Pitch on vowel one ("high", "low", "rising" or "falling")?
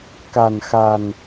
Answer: low